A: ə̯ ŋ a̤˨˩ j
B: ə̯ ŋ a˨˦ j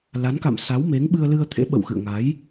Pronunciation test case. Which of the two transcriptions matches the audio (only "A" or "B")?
B